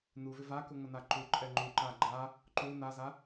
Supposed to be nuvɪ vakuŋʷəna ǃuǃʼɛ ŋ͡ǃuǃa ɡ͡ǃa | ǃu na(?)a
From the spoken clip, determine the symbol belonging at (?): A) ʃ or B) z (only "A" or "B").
B